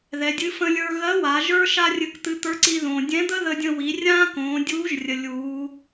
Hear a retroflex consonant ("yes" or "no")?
no